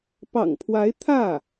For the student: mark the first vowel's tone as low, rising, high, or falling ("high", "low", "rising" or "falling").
low